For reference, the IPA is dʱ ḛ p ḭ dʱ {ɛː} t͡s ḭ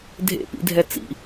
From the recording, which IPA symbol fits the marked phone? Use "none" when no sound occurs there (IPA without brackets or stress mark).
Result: ɛ